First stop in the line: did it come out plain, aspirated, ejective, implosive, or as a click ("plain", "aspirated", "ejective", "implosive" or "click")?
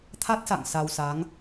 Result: aspirated